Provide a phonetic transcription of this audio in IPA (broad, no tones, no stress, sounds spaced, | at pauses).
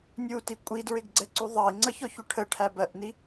nʲ u t i kʷʼ i d ɹ ɪ ɡ ɡ͡ǀ ɛ ǀ u ðˤ ɑ i̯ ŋ͡ǀ ʌ ç ɔ ç u ʈʰ ə ʈʰ æ b ɜ ʔ n i